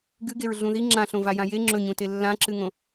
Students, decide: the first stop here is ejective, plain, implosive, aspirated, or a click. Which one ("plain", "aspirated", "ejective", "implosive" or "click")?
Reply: plain